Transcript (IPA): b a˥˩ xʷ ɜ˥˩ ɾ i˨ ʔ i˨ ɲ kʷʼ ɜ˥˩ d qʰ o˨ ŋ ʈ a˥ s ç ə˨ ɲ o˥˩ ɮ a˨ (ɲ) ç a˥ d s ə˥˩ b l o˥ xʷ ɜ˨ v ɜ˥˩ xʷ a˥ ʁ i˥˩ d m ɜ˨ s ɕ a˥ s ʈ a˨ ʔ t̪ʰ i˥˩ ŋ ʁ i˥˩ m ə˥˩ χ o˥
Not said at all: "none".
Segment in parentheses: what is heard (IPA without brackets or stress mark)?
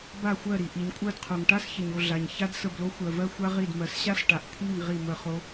ɲ